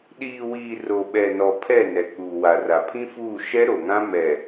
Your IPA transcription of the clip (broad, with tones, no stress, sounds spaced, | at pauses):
ɗ iː˨ w iː˨ r o˨ ɓ ɛ˨ n ɔ˨ pʰ ɛ˦˨ n ɛ˨ k͡p uː˨ w a˨ r a˨ pʰ ĩ˦ f uː˦˨ ʃ ɛ˦ ɾ o˨ ŋ ã˦ m ɛ˨